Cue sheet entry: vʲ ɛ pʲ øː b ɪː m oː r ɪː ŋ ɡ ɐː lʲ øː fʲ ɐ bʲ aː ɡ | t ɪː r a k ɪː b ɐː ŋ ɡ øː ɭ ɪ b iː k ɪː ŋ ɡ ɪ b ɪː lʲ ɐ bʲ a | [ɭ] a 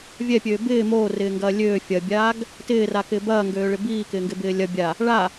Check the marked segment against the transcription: correct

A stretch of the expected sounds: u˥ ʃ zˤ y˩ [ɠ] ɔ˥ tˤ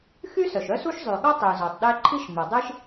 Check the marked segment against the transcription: correct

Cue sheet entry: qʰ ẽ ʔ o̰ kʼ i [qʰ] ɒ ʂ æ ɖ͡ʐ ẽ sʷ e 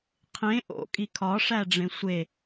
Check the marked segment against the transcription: incorrect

